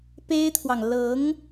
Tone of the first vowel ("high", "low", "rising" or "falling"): high